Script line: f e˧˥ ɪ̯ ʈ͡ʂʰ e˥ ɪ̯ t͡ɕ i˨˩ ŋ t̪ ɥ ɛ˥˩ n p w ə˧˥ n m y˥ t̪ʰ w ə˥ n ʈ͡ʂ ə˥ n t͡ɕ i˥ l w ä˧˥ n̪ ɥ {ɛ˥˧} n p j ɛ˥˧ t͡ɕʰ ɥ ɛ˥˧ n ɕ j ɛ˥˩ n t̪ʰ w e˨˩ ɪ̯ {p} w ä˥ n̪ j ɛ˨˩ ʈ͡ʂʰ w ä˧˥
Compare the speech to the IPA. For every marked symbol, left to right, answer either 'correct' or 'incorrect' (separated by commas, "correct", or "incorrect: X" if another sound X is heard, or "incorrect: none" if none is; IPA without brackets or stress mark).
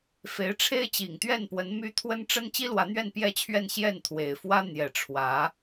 correct, incorrect: f